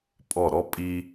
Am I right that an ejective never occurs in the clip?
no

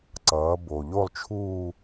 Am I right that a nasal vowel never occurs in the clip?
yes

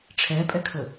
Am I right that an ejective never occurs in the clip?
no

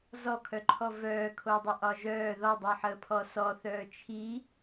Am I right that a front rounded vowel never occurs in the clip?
no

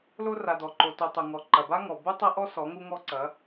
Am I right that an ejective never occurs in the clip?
yes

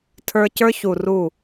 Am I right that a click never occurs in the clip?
yes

